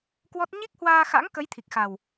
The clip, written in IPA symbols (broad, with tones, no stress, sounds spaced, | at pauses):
k w ɔ˦˥ t̚ ɲ i˦˥ k̚ h w aː˧ x a̰˧˥ ŋ k ə˨˦ j t̪ʰ i˨˩ k̚ x a˨˩ w